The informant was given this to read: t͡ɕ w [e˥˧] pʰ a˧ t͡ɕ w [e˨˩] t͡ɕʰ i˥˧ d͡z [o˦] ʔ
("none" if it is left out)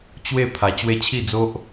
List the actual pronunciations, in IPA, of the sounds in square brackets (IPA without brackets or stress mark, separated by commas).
e˥˧, e˦, o˦